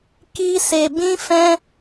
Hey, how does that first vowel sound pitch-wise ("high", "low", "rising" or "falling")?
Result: high